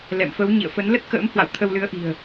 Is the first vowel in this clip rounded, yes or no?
no